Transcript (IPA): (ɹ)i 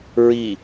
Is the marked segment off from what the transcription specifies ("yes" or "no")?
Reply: no